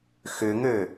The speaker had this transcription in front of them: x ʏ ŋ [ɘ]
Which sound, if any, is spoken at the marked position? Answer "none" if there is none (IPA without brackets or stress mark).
ø